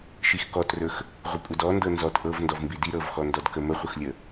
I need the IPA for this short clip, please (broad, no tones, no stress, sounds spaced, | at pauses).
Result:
ʃ i x k ɔ t r ɵ x | ʁʷ ə kʷʼ ə d ɔ n d ɤ n z ɔ t ʔ ɤ v n d ɔ v m b i d i ɾ ɤ v x ɔ n d ɔ d k ə m ə χʷ ə x lʲ ə